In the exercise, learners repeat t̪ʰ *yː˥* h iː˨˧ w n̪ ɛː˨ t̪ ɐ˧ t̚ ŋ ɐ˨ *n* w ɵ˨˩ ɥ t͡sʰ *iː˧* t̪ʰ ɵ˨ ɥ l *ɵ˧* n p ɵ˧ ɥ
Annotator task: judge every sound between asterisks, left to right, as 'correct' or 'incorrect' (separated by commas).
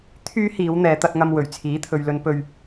correct, incorrect, incorrect, correct